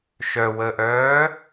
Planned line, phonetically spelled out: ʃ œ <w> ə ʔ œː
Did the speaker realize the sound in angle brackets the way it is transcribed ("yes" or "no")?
yes